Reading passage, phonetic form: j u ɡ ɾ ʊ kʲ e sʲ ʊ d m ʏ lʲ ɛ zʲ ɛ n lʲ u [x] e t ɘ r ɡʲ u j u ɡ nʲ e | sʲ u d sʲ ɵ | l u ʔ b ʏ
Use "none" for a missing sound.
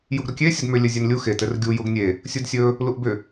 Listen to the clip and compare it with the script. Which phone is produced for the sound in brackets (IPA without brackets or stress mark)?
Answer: x